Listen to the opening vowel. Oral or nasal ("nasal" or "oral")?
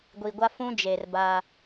oral